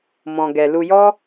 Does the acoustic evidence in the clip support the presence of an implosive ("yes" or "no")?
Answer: no